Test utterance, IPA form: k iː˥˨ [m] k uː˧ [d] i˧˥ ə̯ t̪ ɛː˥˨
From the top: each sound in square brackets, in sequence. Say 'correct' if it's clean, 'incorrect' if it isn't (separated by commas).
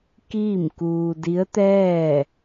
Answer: correct, correct